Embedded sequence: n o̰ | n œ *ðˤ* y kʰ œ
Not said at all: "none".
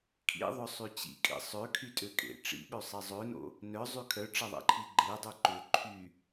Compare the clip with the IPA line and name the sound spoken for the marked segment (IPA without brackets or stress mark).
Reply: zˤ